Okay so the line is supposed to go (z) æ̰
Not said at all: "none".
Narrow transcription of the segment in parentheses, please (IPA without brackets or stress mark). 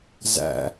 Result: z